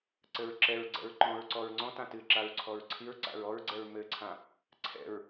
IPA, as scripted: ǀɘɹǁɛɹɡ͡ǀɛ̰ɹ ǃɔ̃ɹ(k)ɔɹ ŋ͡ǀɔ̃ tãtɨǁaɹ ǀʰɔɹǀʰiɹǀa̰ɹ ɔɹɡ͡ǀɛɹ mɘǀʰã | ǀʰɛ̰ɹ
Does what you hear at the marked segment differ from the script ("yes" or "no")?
yes